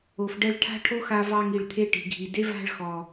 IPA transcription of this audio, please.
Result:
o˨fɖɛ˧ɭ ʈʰa̤˦ʈʰo˦xa˧ vɑ˧ŋi˨ɭt̪ʰe˧ ʈi̤˨ɡʱi˨ de˦va̤˦˨ɭ xɔ˨

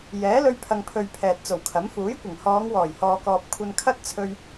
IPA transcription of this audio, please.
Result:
jɛː˨˥lɵ˧ɥ pʰɐ˨ŋpʰɵ˨ɥ pʰɛː˨t̚t͡so˨˩wkʰɐ˨˥m fuː˨˥jkʷɪ˨˩ŋ hɔː˨˧ŋwɔː˨˩jhɔː˨kɔː˨p̚ kʷʰɐ˧nkʰɐ˥t̚t͡sʰɵ˧ɥ

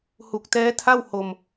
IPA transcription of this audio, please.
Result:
hu˨˩k̚tɛː˦˥tʰa˥˩w ho˧m

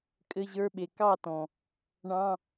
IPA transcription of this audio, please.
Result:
kʼɘ˧˥˧ʑə˞˧˥˧ɓe˨˩ kɑ˥˨ tɔ̃˨˩ | ɳɑ̃˧˥˧

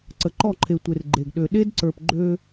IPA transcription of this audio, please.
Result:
ǀə˨ǃɔ˦˨ǃʰe˨tʷe˨r ɡ͡ǃe˨ɡɗø˨ ɗe˦dǀə˞˨p ɡ͡ǃø˦

